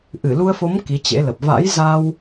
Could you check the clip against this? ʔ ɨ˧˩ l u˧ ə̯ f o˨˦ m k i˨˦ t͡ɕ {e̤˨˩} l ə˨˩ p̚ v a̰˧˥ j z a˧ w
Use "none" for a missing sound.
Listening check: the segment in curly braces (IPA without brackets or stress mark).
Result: ḛ˧˥